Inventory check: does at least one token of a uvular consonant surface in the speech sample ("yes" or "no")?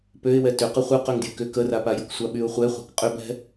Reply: yes